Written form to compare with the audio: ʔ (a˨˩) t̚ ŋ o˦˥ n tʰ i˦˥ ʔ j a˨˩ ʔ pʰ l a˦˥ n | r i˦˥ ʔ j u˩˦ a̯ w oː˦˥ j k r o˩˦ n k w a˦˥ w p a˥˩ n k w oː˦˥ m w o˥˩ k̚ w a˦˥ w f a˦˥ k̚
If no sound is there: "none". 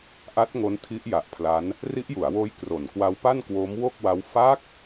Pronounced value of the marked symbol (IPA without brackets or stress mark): a˦˥